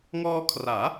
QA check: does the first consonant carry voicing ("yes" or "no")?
yes